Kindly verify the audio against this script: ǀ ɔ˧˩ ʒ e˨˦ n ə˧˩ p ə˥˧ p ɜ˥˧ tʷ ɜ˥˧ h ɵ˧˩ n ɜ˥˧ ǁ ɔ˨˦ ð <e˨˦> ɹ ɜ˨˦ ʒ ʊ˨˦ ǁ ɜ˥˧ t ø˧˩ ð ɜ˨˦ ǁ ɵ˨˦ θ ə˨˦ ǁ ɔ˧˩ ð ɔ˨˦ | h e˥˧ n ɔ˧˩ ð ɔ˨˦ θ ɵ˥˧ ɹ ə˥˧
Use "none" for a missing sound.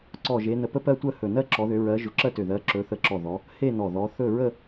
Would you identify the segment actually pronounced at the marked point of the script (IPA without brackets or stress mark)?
ø˨˦